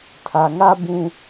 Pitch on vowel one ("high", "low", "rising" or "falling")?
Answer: low